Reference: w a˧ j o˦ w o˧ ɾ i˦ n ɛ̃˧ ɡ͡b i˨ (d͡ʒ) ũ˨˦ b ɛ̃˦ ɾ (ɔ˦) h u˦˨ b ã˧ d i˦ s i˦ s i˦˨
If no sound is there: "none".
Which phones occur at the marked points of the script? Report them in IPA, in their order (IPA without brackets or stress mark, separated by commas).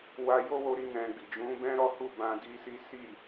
d͡ʒ, ɔ˦